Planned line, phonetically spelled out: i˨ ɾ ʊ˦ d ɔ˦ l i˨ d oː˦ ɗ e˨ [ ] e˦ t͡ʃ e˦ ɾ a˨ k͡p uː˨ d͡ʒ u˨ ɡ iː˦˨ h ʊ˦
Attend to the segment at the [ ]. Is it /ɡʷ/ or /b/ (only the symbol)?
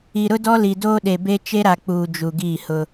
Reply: b